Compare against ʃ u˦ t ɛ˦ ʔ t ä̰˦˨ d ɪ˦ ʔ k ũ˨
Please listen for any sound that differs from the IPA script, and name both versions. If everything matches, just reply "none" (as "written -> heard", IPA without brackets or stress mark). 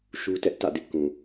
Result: none